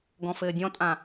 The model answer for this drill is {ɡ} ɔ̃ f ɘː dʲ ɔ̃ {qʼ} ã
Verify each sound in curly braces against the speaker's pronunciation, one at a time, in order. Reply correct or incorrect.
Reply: correct, incorrect: tʼ

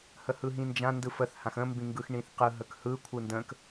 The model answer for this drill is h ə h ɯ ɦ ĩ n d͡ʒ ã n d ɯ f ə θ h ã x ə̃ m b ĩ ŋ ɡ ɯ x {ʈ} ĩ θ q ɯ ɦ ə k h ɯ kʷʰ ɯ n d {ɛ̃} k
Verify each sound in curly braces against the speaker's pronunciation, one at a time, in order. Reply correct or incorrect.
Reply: incorrect: ɳ, incorrect: ə̃

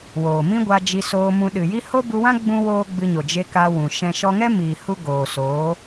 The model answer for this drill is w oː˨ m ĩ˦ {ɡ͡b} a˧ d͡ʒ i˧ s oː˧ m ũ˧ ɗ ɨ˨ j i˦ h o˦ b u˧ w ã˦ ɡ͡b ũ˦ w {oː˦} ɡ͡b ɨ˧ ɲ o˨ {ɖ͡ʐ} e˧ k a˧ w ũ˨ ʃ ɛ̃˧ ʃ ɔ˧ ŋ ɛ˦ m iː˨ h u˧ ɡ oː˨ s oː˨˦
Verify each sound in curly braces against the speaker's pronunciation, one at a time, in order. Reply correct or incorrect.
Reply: incorrect: ɡʷ, correct, incorrect: d͡ʒ

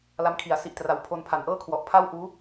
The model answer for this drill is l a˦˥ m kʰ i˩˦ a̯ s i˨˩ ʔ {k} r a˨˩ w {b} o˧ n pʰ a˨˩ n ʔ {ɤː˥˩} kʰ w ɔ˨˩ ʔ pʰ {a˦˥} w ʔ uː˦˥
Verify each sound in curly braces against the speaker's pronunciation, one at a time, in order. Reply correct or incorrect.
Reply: incorrect: t, incorrect: pʰ, correct, incorrect: a˥˩

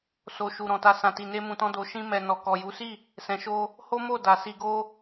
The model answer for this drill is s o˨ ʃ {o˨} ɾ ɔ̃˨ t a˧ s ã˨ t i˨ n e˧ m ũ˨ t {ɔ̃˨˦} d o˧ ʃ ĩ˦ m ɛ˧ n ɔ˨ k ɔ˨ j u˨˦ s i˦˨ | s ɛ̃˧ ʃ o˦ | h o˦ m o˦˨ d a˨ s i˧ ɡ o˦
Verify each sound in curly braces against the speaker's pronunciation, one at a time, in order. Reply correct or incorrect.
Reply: incorrect: u˨, incorrect: ɔ̃˧

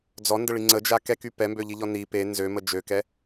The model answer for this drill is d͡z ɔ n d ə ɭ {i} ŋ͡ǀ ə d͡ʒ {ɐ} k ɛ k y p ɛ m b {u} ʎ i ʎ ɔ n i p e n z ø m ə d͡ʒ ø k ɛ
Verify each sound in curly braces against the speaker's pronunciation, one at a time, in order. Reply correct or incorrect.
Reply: correct, incorrect: a, incorrect: ø

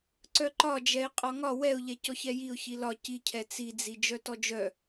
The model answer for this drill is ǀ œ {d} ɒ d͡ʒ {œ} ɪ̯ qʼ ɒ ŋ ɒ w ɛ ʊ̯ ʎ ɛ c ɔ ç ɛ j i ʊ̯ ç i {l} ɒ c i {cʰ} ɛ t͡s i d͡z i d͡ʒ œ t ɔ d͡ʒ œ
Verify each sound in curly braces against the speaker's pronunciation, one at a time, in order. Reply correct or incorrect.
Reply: incorrect: ǃ, incorrect: ɛ, correct, correct

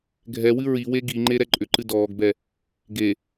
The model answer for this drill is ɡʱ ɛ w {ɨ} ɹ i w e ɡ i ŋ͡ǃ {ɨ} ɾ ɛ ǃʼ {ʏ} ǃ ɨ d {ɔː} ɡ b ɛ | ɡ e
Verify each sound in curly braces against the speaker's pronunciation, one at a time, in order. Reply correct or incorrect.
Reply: correct, incorrect: e, correct, correct

